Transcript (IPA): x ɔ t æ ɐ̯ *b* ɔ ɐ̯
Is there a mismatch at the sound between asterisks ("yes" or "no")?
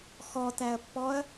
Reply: yes